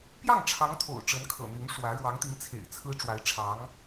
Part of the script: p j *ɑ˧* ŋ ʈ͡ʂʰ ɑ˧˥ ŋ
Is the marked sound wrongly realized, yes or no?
yes